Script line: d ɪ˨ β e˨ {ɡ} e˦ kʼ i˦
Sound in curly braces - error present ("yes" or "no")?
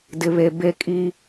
yes